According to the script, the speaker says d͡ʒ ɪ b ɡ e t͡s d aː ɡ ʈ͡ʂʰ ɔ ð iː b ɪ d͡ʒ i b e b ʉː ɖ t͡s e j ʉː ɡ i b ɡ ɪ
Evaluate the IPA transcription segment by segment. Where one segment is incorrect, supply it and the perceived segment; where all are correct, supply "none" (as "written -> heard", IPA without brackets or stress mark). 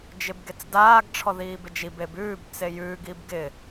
ɖ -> b